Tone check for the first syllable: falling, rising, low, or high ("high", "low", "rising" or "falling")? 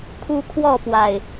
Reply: high